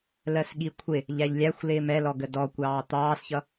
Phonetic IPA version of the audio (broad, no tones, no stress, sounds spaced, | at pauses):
l ɜ s ɠ i kʷʰ ɪ | ʎ æ ʎ lʲ æ xʷ l ɪː m ɛ l ɔ ɡ ə d ɔ kʷ ɑː t̪ ɑː s ç ʌ